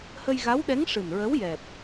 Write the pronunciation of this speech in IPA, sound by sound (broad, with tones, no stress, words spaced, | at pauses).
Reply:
hə˧jɣa˧˥wɗɛ˧˥ŋ ʂɨ˨˩nɹə˧˥w jɛ˨˩p̚